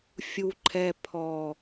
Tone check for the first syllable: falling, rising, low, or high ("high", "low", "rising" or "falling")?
low